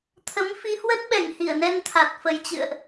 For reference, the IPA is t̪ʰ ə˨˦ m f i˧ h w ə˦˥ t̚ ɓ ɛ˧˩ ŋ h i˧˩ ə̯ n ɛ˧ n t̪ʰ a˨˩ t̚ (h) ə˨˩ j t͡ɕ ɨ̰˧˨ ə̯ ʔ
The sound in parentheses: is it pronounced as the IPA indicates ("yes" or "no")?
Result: no